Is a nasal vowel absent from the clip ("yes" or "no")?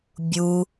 yes